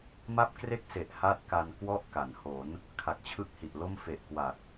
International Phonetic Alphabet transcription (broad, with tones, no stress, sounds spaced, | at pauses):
m a˥˩ p̚ k r e˥˩ k̚ s e˨˩ ʔ h a˥˩ t̚ k a˧ n k w ɔ˥˩ ʔ k a˩˦ n h o˩˦ n | kʰ a˨˩ k̚ t͡ɕʰ ɯ˥˩ k̚ h i˨˩ ʔ l o˥˩ m f e˨˩ ʔ k w a˨˩ t̚